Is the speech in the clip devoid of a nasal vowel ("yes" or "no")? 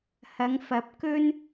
yes